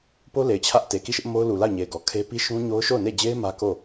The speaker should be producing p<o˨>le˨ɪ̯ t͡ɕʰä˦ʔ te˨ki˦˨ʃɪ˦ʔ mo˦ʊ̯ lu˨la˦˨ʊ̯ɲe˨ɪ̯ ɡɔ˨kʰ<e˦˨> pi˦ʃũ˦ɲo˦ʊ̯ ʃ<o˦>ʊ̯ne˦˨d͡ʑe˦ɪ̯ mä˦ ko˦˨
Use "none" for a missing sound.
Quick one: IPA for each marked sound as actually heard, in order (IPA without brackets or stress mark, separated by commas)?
o˦, e˦, o˦˨